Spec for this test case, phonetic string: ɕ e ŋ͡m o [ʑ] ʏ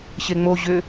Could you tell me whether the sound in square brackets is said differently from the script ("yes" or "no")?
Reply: no